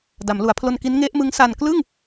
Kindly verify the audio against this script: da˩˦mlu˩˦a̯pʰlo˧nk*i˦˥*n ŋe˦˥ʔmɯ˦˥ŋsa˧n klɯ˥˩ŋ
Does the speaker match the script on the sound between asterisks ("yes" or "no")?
yes